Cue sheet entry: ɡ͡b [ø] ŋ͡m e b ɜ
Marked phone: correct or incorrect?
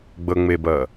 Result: incorrect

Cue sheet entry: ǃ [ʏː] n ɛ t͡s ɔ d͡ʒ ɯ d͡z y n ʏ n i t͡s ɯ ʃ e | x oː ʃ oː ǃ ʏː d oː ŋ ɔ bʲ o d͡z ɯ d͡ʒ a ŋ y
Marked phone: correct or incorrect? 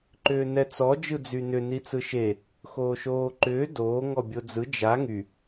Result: correct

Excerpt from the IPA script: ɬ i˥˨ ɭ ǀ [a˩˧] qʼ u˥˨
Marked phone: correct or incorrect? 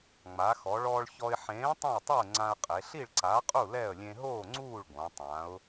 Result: incorrect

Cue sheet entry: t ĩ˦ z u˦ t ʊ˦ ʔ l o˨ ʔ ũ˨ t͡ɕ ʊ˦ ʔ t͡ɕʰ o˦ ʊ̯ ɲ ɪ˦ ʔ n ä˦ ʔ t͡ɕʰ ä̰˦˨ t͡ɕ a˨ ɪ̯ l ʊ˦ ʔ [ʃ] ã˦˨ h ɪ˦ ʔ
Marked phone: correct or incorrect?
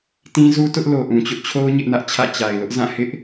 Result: incorrect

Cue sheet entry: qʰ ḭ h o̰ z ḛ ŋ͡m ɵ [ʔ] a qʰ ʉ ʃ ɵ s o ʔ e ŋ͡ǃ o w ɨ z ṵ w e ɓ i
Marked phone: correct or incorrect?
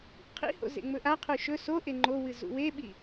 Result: correct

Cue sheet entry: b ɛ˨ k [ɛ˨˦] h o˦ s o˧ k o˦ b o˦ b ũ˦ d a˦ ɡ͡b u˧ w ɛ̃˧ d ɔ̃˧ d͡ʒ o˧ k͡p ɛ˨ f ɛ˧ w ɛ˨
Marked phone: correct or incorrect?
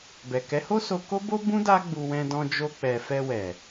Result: correct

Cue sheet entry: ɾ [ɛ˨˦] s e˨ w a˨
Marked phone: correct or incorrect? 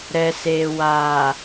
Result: incorrect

